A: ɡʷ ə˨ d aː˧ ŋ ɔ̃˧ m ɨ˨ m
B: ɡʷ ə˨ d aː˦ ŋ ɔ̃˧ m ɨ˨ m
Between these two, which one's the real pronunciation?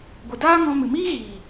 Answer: B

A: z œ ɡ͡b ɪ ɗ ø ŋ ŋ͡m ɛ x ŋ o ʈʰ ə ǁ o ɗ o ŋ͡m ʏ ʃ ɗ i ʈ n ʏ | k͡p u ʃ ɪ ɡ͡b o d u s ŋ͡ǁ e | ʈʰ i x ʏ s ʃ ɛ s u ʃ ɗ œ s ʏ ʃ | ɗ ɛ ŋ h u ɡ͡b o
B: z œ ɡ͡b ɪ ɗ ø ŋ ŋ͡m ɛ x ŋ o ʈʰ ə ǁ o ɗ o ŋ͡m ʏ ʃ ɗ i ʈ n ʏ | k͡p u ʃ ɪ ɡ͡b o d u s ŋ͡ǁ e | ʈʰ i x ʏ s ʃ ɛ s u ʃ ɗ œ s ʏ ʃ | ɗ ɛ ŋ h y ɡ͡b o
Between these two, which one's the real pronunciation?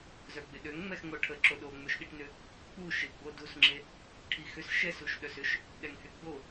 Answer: B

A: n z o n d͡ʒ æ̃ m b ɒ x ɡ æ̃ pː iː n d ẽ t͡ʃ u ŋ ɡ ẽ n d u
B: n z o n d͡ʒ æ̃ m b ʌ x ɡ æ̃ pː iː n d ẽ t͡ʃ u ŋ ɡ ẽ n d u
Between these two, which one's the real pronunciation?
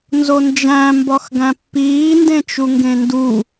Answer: A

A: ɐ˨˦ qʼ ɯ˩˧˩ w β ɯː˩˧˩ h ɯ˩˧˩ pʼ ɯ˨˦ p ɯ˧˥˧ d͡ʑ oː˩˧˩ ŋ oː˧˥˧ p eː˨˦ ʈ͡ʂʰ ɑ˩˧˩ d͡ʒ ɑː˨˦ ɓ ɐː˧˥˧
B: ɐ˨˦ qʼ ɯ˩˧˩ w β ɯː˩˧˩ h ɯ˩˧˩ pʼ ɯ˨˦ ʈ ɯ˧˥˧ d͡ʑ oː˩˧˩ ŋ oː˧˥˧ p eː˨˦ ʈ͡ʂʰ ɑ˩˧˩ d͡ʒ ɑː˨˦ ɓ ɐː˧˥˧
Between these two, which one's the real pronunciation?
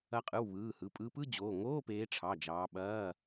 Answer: A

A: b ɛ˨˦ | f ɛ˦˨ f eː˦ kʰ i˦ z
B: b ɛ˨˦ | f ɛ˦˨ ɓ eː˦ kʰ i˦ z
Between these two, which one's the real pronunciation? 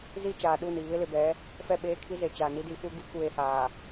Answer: B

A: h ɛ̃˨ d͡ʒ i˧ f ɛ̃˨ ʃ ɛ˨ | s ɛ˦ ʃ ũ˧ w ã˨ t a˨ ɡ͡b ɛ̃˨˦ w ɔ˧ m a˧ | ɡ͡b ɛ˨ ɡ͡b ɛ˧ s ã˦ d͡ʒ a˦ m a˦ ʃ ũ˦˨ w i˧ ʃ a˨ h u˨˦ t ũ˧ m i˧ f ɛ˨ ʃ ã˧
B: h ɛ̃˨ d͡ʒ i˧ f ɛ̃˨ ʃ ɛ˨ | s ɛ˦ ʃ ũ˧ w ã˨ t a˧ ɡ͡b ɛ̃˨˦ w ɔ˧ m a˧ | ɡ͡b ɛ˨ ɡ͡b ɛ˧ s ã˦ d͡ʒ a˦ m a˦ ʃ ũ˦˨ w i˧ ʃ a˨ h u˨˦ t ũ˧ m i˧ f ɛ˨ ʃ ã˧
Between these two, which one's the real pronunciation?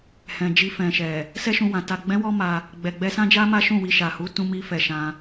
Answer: A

